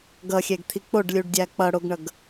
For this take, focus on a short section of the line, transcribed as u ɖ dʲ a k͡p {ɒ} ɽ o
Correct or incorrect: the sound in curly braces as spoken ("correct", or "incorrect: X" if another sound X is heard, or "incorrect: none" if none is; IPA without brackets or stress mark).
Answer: incorrect: ʌ